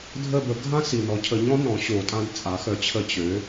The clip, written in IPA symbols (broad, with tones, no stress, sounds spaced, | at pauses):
dʱ ə˦˨ b ə˨˩˦ ɡʱ ã˥ s i˩ n ɔ˩˥ cʰ ə˩˥ ɲ ɔ̃˩˥ n ɔ̃˩˥ ɕ o˨˩˦ tʼ ã˧˥ d t͡sʼ a˩˥ x œ˩˥ t͡ɕʰ ə˦˨ t͡ɕ ø˩˥